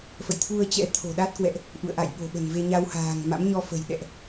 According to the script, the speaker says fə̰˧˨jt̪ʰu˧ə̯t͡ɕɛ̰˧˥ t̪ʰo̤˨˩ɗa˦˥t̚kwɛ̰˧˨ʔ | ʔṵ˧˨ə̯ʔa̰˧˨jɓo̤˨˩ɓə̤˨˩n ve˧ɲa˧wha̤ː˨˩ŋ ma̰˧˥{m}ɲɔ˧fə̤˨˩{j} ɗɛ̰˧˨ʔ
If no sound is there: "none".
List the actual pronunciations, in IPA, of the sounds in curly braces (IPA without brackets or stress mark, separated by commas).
m, j